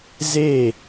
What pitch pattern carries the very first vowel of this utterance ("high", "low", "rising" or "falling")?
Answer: falling